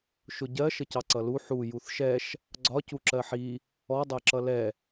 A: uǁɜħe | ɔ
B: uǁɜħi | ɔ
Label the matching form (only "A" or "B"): B